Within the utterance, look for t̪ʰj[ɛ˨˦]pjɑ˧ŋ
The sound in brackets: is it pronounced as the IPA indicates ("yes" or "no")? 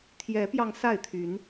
yes